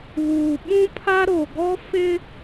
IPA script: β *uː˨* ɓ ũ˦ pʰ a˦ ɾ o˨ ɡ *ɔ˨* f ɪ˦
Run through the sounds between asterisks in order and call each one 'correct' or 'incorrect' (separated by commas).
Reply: correct, incorrect